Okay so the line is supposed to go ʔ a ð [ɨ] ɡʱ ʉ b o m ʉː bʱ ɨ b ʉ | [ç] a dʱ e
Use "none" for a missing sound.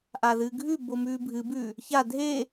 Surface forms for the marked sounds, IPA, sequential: ɨ, ç

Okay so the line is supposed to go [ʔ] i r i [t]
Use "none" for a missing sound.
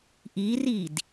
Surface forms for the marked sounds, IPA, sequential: ʔ, d

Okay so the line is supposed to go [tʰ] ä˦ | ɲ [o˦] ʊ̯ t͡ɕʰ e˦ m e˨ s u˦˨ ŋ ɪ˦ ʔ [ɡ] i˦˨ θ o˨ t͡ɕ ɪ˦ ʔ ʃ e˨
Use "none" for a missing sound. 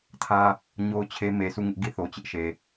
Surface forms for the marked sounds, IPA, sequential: tʰ, o˦, ɡ

